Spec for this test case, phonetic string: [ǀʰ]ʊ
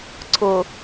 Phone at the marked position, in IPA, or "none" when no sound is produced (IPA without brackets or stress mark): ǀʰ